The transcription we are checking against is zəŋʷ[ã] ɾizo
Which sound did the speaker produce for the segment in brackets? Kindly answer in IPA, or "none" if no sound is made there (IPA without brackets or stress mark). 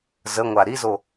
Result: a